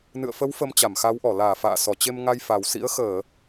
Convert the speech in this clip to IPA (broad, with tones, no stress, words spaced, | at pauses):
nɨ̰˧˨ə̯fə˨˦w fə˧mt͡ɕa˧˩mxa˨˦wʔɔ˧˩ laː˧˩fa̰ː˧˨sɔ˧˩t͡ɕe˧m ŋa˧jfa˨˩wsḭ˧˥ə̯ xəː˧˩˨